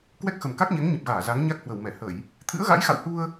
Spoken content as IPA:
k w ɛ˦˥ k̚ x ə˨˩ m k a˦˥ k̚ ɲ ɛ˨˦ ŋ ɲ ə˨˩ p̚ ɣ aː˧˩ z a˨˦ ŋ ɲ a˦˥ k̚ h w ə˧˩ w m ɛ˧˩ h ə˧˩˨ j | t̪ʰ ɨ̰˧˥ ə̯ ɣ a̰˧˥ j x a̰˧˨ w h u˧ ə̯

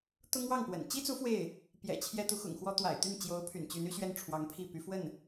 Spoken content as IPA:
t̪ ʊ˥ ŋ w ɑ˥˩ ŋ p w ə̰˨˩ n t͡ɕ i˥ t͡s u˧˥ f w e˥˩ ɪ̯ | p j ɛ̰˨˩ t͡ɕʰ j ɛ˥ t̪ u˧˥ x ʊ̰˨˩ ŋ x w ɔ˥ t̪ w a̰˨˩ ɪ̯ t̪ y˥˩ n t͡ɕ j o˧˥ ʊ̯ pʰ y̰˨˩ n t͡ɕ y˧˥ n y˥ ɕ ɥ ɛ˥˩ n ʈ͡ʂʰ w ɑ˧˥ ŋ pʰ i˥˩ p y˧˥ f w ə˥˩ n

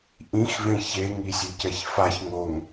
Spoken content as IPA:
ʔ ĩ x v ẽ ç e ŋ i sʲ ɨ c ɛ ç f a ç ŋ o ŋ

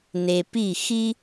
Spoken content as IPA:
n e˨ p i˦˨ x i˦

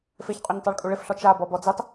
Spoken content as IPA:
f e ç qʼ u ɲ tˤ a ɭ kʼ u ɭ ɪ f ɬ ɔ t͡ʃ a b ɔ b ɔ d͡z i tˤ

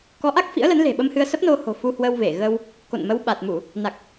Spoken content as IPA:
k ɔ˨˦ ʔ a˦˥ k̚ f ḭ˧˥ ə̯ l ə˨˦ n l e̤˨˩ ɓ ə˧ m h ɨ˧ ə̯ s ə˦˥ p̚ n o˧ h o̤˨˩ f u˧ h w ə˧ w v e˧˩ ɣ ə˧ w | k o̰˧˨ n m ə˨˦ w ɓ a˨˩ t̚ m u˧˩˨ | n a˨˩ k̚

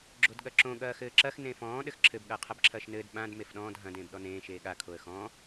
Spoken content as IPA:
ɡ͡ǁ o d ɠ ɐ ǁ õ ɠ ɐː x ɘː ǁ ɐ x n ẽ f ɔ̃ː ɗ ɘ x ǁʰ ɘ b ɠ ɐː qʰ ɐ b ǁʰ ɐː ʃ n ɘː d ɓ ã d m e f ɗ ɔ̃ː d ɦ ɐ̃ d ẽː b ɗ ɔ n ẽː ʃ eː ɠ a kʰ o ə̯ x ɔ̃

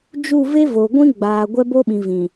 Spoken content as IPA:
d͡ʒ u˦˨ v e˦ v o˨ ɡʷ ĩ˦ ɡ͡b aː˨ ɡʷ ɛ˦ b o˦ ɓ ĩ˨ v ĩ˨

